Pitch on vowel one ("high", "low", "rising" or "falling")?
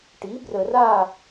rising